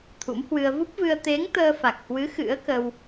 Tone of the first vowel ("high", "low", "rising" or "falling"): rising